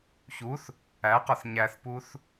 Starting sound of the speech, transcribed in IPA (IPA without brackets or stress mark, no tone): ç